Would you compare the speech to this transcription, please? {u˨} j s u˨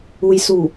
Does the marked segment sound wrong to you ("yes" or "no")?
no